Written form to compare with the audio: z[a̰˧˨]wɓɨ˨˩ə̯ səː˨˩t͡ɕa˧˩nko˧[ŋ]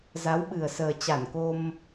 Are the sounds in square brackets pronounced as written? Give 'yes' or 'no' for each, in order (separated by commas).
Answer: no, no